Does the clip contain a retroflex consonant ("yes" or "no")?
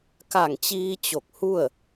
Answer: no